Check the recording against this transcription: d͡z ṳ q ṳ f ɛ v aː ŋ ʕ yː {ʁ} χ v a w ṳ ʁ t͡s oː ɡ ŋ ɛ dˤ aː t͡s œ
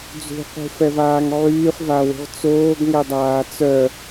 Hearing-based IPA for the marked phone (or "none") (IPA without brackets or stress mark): none